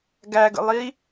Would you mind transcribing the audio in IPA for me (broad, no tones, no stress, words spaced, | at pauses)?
ɡæɡə̰lˠi